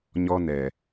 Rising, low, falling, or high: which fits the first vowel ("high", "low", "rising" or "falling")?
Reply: high